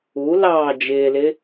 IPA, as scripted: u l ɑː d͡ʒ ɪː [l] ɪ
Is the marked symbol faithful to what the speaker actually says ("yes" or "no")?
yes